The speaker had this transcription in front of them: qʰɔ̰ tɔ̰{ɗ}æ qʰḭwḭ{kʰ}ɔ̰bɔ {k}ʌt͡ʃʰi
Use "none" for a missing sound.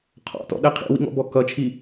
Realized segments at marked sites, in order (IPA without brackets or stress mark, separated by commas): ɗ, ŋ, k